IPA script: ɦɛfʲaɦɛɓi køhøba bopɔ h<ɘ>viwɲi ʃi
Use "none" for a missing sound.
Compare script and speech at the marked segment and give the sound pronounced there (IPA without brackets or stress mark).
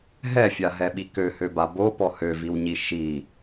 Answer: ø